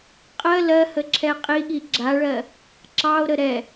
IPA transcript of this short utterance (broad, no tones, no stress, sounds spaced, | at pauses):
qʼ ɜ l ɜ h ə ǁʰ ɛ qʼ i ɠ i ɡ͡ǁ a ɭ ɜ | ǁ ɑ o̯ ɾ ə ɾ ɛ